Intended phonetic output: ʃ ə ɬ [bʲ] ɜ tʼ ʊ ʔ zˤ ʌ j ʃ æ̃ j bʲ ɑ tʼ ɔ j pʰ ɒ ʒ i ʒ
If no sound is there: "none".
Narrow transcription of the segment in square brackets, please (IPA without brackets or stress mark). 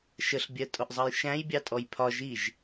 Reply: bʲ